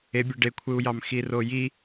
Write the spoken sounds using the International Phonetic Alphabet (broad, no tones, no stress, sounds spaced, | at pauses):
e bʲ ø ɖ e kʷʰ ɯ u̯ j ɑ m x i r o j i